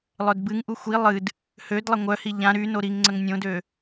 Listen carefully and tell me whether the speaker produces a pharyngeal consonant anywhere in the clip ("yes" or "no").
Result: no